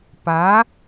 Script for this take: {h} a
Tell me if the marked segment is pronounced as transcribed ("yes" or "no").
no